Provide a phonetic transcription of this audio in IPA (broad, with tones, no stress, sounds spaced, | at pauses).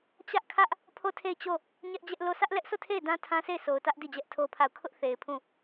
t͡ɕ ä˦ ʔ kʰ ä˦ ʔ | pʰ o˦˨ tʰ e˦˨ ɪ̯ t͡ɕ o˦˨ | ɲ ɛ˦ ʔ d͡ʑ ɛ˦ ʔ l o˦˨ s ä˦ ʔ l ɛ˦ ʔ s o˦˨ tʰ e˦˨ ɪ̯ d ã˦ tʰ ã˦ sʰ e˦˨ ɪ̯ sʰ o˨ ʊ̯ t ä˦ ʔ d i˦˨ d͡ʑ ɛ˦ ʔ tʰ o˦ pʰ a˦˨ ʊ̯ kʰ ʊ˦ ʔ θ e˨ ɪ̯ pʰ ũ˦˨